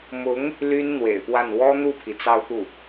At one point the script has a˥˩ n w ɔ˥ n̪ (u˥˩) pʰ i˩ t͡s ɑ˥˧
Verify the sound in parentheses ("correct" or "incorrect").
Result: correct